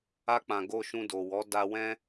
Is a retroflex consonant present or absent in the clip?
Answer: absent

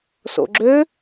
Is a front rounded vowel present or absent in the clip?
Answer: present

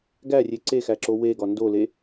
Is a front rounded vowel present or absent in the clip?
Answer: absent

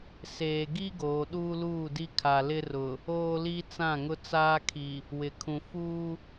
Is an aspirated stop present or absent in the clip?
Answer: present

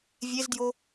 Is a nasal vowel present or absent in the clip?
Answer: absent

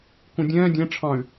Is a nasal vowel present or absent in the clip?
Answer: present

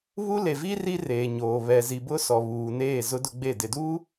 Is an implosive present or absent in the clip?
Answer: absent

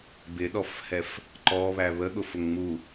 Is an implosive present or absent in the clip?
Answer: present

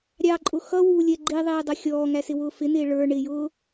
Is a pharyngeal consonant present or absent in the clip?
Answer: absent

